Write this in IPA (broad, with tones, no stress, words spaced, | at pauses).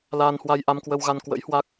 laː˧nhwa˧jʔa˧mkwə˧w ɣa˧n kwə̰˧˥jhwa˦˥k̚